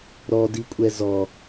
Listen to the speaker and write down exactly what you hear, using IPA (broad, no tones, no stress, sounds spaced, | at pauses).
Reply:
ɾ ɔ d i kʷʼ ɛ z ɔ